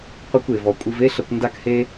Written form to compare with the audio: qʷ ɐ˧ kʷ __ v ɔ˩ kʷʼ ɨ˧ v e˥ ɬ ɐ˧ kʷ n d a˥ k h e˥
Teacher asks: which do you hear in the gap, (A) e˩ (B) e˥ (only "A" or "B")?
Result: A